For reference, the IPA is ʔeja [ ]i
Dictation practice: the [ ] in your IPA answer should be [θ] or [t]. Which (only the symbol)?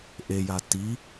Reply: t